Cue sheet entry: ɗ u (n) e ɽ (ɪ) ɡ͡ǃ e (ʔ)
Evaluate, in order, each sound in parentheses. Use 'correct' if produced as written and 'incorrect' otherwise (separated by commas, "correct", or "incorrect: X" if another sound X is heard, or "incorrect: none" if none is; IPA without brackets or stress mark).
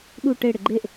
incorrect: ʈ, correct, correct